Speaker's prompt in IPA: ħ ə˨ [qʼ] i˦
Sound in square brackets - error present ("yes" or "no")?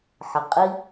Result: no